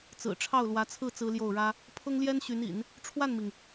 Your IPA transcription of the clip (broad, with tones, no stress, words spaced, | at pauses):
t͡sɹ̩˨˩ʈ͡ʂʰɑ˥˩ʊ̯lwä˧˥t͡sʰɹ̩˥˩ t͡sɹ̩˥ljo˥˩ʊ̯ɻä˥ | pʰʊ˥ŋljɛ˥nɕy˧˥nḭ˨˩˦n | ʈ͡ʂʰwa˥˩nmi˩ŋ